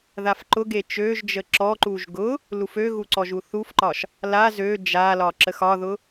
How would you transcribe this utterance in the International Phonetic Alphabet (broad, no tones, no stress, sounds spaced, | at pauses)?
ð a f ǃ ʊ ɡ e t͡ʃ ø ʒ d͡ʒ ə ǁ ɔ ǃ u ʒ ɡ ʊ | l u f ø ɣ u ǀ ɔ ʒ u θ u f ǃ ɒ ʃ | l a z ø d͡ʒ a l ɒ ǁ ə x ɒ ð ʊ